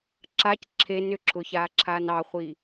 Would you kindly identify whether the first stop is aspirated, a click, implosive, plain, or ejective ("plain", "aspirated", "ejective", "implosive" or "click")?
click